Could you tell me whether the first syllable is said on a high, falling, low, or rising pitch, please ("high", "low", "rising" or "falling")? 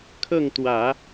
falling